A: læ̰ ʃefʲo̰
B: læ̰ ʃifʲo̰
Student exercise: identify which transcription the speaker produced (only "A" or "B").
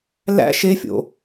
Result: A